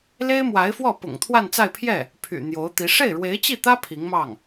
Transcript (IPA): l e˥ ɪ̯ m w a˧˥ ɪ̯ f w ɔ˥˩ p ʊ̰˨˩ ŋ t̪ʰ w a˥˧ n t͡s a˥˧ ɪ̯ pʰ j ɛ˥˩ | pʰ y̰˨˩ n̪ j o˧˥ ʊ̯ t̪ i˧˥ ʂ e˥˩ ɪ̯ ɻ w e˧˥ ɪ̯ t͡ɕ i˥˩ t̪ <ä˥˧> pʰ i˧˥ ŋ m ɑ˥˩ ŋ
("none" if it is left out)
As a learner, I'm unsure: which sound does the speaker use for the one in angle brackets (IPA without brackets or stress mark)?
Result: ä˥